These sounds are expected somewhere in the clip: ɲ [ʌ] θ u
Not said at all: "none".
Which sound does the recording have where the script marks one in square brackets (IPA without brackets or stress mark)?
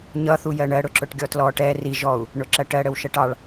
ʌ